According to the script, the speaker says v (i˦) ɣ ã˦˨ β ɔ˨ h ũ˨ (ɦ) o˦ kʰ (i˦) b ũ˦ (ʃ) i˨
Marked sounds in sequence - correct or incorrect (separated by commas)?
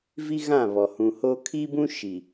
correct, incorrect, correct, correct